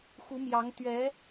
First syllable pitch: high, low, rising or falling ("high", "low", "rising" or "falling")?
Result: rising